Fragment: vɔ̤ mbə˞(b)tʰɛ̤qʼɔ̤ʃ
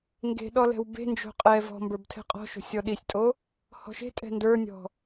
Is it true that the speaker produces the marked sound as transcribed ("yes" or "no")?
yes